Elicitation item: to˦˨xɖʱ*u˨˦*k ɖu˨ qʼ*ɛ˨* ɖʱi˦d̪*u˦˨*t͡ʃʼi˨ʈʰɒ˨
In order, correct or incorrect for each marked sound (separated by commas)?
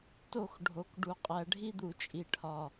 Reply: incorrect, incorrect, incorrect